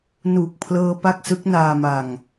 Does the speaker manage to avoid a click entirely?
yes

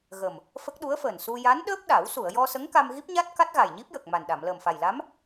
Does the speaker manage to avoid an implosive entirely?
no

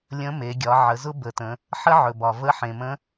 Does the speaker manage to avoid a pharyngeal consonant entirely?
no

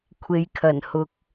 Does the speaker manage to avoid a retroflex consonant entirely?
yes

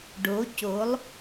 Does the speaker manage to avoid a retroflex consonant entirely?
no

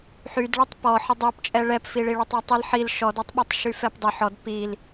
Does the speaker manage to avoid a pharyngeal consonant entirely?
no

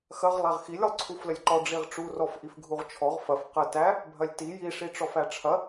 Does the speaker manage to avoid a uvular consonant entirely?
no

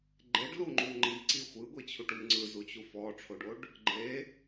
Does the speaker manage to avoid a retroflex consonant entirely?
no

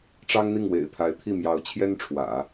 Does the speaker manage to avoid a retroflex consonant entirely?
no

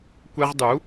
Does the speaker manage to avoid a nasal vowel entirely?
yes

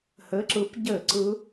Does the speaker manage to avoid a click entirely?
no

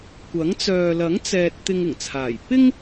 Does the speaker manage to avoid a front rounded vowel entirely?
no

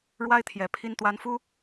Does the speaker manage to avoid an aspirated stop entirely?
no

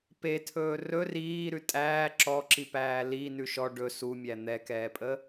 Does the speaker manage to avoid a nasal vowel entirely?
yes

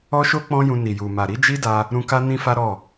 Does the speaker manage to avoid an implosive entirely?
yes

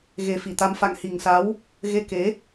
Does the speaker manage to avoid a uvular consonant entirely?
yes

